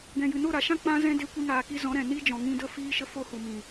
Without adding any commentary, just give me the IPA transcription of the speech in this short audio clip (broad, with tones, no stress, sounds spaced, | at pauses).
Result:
ɡ ɛ̃˨ j ɨ˨ n o˦˨ ɾ a˨ ʃ ã˦ k͡p ã˦ z ɛ̃˦ d e˧ kʷ i˧ ŋ aː˨ k i˧ z ɔ̃˨˦ ɾ ɛ̃˨ n i˦ d͡ʒ ɔ̃˨ ŋ ĩ˧ d ə˦˨ f iː˦ ʃ ə˦ f o˦ h u˨ m ĩ˨